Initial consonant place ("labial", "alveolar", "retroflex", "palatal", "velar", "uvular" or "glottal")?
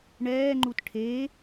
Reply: retroflex